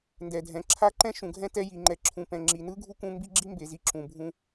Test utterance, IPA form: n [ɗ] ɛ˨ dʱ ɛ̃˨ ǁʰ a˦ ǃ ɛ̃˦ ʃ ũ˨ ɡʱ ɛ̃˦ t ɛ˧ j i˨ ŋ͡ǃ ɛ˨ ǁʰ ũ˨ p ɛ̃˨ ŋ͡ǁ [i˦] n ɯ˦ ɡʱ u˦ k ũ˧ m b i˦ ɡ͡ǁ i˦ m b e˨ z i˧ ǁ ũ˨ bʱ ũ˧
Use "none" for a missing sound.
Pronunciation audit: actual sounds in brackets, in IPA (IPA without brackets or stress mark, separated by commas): d, i˨